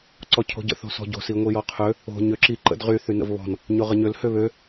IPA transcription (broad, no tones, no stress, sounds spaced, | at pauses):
ǀ ɔ cʰ o̤ ɟ ə̰ θ o̤ s ɔ̤ ɟ o̤ s i ŋʷ i j ɔ qʰ ø | o̤ ɲ ø ǁ i ǃ ə̰ d ʁ y θ y n ə̰ v β ɔ̤ n | ɲ o ʁ ə ɲ ø l h ø β ø